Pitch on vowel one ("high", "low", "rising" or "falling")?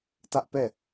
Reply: high